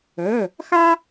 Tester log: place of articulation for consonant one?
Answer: velar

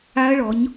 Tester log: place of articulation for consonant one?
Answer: retroflex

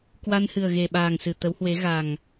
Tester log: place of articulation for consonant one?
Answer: velar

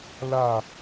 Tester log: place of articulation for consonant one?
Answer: alveolar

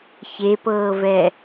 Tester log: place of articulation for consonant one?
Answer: palatal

